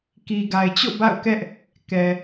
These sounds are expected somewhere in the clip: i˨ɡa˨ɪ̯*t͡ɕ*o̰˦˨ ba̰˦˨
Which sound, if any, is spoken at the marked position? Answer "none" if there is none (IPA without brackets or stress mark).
t͡ɕ